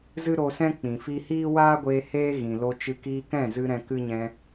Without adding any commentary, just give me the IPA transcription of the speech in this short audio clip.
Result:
z ɨ˦ ɾ o˧ s ɛ̃˦ k͡p ĩ˨ f i˧ h iː˦ w aː˦ ɡʷ eː˧ h eː˧ ɣ ĩ˨ l o˧ t͡ʃ ɨ˧ k iː˧ k ɛ̃˦˨ z ɨ˧ ɾ ɛ̃˧ k ɨ˦ ɲ ɛ̃˧

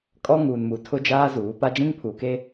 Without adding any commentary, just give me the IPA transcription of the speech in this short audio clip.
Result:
kʼ ɔ˦ ŋ uː˨ n m u˨ tʰ ʊ˦ d͡ʒ aː˦ z uː˨˦ p a˦ d͡ʒ ĩ˦ ŋ pʰ u˨ k e˦

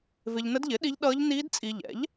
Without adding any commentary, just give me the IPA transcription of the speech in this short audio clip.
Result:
v ɪ˧ ʎ n ə˦˥ d ʎ ɪ˩˥ ɗ i˦˥ ʎ ɗ ʌː˦˥ ʎ n iː˦˥ d t͡sʼ i˧ ʎ ɛ̰˩˥ ʎ

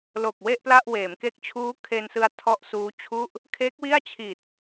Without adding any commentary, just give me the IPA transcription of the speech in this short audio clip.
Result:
l o˨˩ k̚ w e˥˩ ʔ p l a˥˩ ʔ w eː˩˦ m k e˦˥ k̚ t͡ɕʰ uː˦˥ kʰ e˧ n s ɯ˧ a̯ tʰ ɔ˦˥ ʔ s uː˦˥ t͡ɕʰ u˥˩ ʔ | kʰ e˦˥ k̚ w i˥˩ a̯ t͡ɕʰ i˨˩ t̚

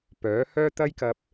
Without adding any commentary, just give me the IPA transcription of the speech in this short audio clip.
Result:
p œː˨˥ h œː˥ t̪ ɐ˥ j k ɐ˧ p̚

